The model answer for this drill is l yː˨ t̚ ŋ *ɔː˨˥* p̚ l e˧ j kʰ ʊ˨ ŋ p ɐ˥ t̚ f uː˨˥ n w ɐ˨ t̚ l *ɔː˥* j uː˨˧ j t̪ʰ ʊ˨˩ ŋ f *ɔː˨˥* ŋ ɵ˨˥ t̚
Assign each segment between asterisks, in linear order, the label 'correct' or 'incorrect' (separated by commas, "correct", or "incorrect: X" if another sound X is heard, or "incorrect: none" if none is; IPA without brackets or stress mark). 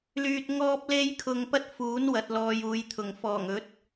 incorrect: ɔː˧, incorrect: ɔː˨, incorrect: ɔː˨˩